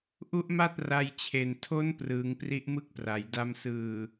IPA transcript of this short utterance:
ʔ u˦˥ ʔ m a˥˩ t̚ r a˧ j t͡ɕʰ e˨˩ n tʰ o˦˥ n p r ɯː˩˦ ŋ p r i˦˥ ʔ m ɯ˥˩ k̚ p r a˩˦ j d a˧ m s ɯː˨˩

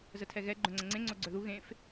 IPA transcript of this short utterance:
z ə tʰ ɛ ɣ ɛ ɡ͡ǃ œ̃ ŋ͡ǀ ə̃ ŋ͡ǀ ẽ ŋ͡ǀ o ɡ͡ǀ œ ð u ɣ ẽ f

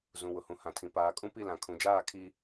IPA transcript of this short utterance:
z ũ˨ w ʊ˨ h ũ˨ h ã˨ tʰ ĩ˨ p aː˨ kʼ ũ˦ p i˦˨ l ã˨ kʰ ũ˨ d͡ʒ aː˦˨ kʰ i˦

